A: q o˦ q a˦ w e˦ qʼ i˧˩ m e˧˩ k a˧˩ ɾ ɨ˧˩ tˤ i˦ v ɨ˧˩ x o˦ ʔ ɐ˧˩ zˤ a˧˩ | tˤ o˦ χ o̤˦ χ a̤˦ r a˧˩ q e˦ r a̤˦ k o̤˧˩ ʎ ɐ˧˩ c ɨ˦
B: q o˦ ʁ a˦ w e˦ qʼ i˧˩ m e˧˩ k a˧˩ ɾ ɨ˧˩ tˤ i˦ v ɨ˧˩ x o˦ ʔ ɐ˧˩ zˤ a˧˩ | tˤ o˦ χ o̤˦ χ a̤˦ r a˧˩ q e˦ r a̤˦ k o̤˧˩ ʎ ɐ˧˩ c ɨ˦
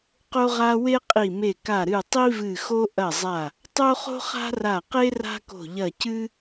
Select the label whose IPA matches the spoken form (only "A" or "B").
B